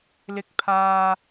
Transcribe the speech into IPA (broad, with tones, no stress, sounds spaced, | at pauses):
l ɪ˧ k̚ pʰ aː˧